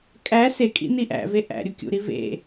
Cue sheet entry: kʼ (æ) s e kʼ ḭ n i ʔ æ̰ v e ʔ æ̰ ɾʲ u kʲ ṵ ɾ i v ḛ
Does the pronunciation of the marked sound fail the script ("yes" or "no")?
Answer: no